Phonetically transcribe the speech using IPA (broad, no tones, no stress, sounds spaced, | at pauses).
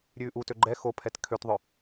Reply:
ɾʲ ʉː ʔ u t ø ɡ͡ǃ ɛ x o pʰ ɛ t kʰ ø t ðˤ œ